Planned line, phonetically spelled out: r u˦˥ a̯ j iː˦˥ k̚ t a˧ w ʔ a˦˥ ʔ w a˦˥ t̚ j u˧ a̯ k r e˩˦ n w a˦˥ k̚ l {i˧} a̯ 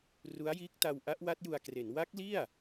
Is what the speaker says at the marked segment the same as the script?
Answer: no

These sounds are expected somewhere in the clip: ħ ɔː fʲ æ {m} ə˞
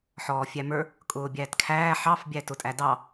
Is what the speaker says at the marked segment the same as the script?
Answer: yes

